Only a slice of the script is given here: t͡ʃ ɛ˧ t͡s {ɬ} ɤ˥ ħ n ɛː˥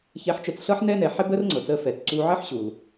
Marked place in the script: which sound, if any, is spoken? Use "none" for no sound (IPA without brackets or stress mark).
ɬ